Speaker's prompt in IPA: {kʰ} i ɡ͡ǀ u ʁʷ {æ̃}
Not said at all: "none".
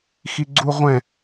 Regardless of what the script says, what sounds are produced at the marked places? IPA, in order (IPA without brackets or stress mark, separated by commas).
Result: x, ɛ̃